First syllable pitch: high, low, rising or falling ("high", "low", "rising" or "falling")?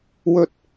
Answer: low